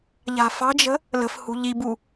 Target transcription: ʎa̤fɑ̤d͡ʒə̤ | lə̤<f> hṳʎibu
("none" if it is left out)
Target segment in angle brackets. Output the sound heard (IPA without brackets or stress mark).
f